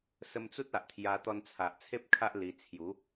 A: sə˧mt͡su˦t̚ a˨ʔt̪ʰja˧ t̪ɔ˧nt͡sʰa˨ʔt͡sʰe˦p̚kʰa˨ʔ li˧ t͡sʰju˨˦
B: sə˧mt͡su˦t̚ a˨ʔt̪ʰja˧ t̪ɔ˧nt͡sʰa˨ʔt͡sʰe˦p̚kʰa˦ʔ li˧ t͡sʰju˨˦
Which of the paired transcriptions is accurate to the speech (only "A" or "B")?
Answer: B